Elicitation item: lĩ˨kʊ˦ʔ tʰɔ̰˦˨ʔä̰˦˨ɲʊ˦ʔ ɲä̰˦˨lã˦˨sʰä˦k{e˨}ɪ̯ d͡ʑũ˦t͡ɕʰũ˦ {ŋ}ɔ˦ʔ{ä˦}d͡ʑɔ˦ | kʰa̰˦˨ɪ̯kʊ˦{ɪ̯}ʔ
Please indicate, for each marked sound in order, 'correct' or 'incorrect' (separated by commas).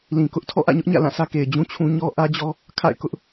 correct, incorrect, correct, incorrect